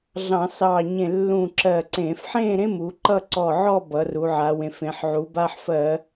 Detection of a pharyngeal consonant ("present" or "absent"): present